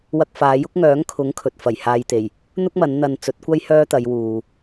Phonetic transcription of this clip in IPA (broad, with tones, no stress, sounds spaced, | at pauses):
w ɐ˧ k̚ f aː˨˧ j ʊ˥ k̚ ŋ œː˨˥ ŋ kʰ ʊ˨˥ ŋ kʰ ɵ˨ t̚ f ɐ˨˩ j h aː˧ j t̪ e˨˩ j | n̪ ʊ˥ k̚ m ɐ˨˧ n n̪ ɐ˧ n t͡s ɵ˨˥ t̚ kʷ ɐ˥ j h œː˥ t̪ ɐ˨˧ j w uː˨